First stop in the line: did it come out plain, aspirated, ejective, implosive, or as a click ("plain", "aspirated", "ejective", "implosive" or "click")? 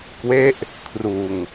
plain